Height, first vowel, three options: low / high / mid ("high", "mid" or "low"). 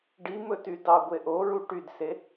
high